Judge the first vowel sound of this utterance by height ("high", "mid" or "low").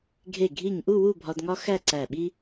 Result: mid